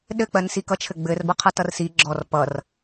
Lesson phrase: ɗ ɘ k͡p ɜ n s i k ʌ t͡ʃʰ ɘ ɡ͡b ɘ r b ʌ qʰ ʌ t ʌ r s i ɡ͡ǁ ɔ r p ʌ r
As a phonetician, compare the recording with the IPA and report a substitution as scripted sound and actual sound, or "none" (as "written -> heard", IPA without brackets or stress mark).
none